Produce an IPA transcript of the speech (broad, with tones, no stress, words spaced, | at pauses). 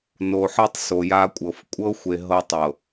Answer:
no˨ ħɤ˦tˤ so˨ja˦kʷʼɤ˨f kʷʼɤ˦xʷe˨ ɦɤ˦tˤɤ˨